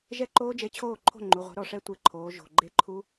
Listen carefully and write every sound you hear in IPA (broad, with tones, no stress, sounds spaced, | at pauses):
ʒ ɛ˥˩ ǃ oː˦˥ d͡ʒ e˨˥ t͡ɕʰ oː˥˩ ǃʰ o̤˥˩ ŋ͡ǃ u˩˧˩ ʁʷ ɛ̤˨˥ ɾ ɔ˩˧˩ ʂ ɛ˥˩ tʷ e˥˩ ǃʰ oː˨˥ ʒ o̤˩˧˩ ɡ͡ǃ e˦˥ ǃʰ u˦˥